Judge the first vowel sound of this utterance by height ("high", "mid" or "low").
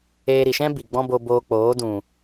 mid